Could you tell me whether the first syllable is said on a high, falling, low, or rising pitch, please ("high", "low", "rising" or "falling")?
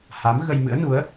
rising